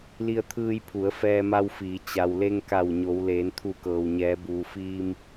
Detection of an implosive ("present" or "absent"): absent